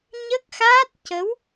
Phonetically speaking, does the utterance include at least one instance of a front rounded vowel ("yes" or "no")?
no